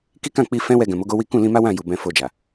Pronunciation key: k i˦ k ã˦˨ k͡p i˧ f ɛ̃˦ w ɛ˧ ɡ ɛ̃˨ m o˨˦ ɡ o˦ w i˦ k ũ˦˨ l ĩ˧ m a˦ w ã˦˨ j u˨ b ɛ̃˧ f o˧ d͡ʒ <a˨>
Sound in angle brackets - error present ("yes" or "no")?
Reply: no